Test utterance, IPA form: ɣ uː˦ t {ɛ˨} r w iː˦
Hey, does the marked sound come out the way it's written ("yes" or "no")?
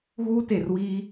no